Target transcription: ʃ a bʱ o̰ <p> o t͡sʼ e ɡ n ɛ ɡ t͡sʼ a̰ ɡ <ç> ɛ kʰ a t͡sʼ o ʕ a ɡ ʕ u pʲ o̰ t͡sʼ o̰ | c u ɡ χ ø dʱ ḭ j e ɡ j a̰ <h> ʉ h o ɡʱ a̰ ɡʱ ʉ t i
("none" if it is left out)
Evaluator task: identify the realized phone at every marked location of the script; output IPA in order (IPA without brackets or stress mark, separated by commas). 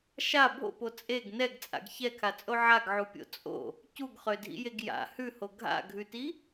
p, ç, h